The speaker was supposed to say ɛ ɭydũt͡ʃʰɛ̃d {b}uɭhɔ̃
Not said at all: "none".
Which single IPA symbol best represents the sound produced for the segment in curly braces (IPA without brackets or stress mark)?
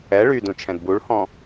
b